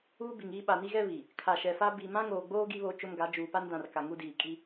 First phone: uː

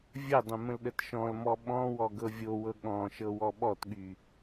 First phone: vʲ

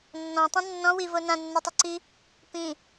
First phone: nː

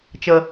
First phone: t͡ʃ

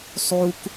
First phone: sˤ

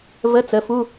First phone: v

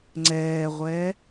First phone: ŋ͡ǀ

